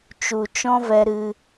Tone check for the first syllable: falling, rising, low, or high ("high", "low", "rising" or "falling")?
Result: low